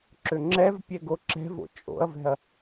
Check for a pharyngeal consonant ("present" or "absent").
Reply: absent